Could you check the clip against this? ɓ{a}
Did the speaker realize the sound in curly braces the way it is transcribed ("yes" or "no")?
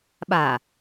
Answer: yes